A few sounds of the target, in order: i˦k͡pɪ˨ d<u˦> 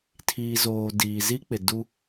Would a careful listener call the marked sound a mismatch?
no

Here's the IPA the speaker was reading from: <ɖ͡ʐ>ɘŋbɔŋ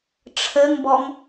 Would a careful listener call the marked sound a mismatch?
yes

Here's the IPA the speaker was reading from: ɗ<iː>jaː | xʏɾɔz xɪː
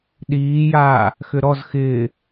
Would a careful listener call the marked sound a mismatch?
no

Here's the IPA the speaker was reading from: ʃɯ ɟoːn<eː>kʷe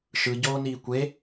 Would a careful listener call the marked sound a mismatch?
yes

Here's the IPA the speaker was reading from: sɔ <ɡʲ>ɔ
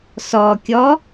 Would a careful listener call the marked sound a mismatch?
yes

